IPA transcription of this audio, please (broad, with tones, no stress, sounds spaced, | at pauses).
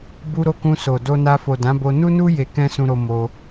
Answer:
b u˧ ɾ o˧ k ũ˧ s o˨ d o˧ n a˧ f o˨ d ã˨˦ b o˧ n u˦ n u˦ j e˧ k ɛ̃˦ s ũ˧ ɾ o˧ m o˧